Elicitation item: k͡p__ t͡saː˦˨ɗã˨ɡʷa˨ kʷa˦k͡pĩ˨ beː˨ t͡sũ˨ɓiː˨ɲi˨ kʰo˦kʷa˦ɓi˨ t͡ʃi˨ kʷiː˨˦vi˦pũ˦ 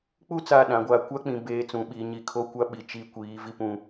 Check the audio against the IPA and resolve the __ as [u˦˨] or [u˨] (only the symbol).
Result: u˦˨